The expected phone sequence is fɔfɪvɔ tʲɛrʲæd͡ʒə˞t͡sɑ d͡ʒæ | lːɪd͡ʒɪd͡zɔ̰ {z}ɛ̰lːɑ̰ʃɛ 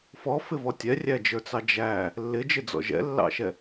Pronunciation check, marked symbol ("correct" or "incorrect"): incorrect